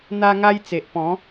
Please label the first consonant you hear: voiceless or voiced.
voiced